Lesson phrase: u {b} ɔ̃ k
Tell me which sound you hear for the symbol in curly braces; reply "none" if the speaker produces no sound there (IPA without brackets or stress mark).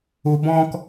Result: b